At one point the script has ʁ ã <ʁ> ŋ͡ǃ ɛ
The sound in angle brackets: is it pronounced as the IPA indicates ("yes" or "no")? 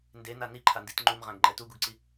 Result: no